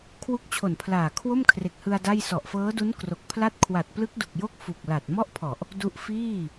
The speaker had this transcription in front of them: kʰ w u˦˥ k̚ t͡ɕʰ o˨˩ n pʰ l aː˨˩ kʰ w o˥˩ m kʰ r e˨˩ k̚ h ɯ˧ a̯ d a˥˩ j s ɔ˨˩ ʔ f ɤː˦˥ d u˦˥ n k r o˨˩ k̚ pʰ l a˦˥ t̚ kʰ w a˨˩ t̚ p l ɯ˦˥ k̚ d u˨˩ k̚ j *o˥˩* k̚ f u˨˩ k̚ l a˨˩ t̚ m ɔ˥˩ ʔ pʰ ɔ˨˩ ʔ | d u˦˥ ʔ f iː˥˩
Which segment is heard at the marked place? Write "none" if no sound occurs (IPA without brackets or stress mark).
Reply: o˦˥